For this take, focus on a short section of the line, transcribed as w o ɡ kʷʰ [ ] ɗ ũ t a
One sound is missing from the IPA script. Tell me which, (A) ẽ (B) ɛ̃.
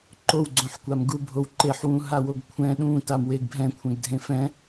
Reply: B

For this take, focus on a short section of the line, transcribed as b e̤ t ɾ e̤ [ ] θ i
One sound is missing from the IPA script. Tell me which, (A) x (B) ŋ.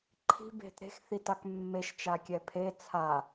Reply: A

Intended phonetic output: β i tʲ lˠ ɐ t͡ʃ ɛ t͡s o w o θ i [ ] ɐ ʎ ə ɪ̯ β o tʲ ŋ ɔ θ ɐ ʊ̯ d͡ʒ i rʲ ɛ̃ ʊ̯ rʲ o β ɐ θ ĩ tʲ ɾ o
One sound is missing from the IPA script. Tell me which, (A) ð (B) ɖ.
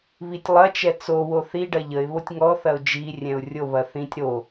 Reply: B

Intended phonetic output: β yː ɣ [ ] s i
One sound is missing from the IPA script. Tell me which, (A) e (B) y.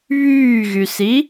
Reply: B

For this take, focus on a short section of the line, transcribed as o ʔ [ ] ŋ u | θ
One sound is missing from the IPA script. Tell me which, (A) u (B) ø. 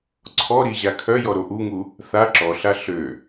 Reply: A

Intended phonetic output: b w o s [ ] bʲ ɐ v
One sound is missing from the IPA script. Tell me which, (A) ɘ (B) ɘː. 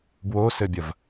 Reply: A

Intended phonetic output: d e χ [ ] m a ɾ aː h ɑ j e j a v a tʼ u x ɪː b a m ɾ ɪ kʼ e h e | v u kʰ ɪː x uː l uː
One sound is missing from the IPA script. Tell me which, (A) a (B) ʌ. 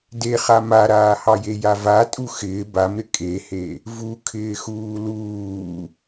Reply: A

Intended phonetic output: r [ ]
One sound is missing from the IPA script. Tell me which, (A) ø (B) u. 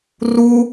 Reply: B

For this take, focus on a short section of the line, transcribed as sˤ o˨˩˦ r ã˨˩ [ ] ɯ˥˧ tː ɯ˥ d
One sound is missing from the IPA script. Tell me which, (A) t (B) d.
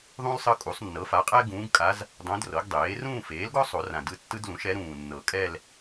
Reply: B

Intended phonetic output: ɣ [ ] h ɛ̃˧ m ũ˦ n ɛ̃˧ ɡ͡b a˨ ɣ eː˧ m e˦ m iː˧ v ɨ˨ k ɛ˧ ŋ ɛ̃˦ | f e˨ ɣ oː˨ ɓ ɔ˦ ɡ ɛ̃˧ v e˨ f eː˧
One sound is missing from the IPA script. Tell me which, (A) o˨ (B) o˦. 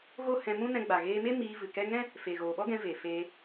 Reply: B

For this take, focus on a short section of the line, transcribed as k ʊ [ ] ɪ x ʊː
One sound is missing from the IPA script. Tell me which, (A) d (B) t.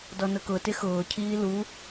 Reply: B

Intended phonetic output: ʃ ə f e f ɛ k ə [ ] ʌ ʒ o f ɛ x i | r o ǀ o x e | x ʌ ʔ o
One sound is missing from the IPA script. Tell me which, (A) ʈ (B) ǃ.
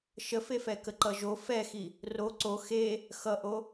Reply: B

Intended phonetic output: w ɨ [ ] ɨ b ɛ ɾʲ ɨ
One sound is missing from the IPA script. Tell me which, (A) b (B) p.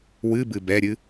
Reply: A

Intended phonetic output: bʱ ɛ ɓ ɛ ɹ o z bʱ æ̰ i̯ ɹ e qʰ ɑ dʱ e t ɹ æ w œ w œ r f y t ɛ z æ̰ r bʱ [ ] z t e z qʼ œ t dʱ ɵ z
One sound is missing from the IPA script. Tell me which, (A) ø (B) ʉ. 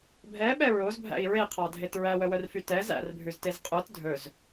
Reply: B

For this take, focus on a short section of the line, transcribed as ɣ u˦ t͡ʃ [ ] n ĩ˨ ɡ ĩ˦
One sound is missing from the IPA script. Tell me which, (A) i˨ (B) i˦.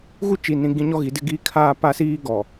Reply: A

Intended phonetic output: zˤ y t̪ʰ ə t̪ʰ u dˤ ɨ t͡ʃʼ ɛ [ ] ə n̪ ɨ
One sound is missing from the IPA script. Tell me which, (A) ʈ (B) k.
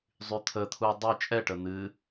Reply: A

